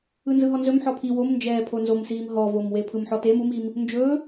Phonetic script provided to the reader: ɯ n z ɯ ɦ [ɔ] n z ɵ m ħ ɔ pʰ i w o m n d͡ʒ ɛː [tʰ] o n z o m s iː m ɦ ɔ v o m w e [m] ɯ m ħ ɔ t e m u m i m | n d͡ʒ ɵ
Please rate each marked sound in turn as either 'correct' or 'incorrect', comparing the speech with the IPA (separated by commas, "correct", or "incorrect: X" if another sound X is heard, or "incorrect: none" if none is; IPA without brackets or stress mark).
correct, incorrect: pʰ, incorrect: pʰ